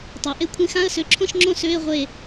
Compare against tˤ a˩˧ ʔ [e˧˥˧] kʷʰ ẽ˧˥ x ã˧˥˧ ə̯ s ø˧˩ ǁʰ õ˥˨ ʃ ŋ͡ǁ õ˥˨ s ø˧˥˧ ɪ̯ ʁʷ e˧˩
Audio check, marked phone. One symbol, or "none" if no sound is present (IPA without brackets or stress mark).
e˧˥